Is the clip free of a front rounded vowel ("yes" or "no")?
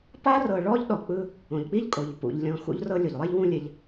yes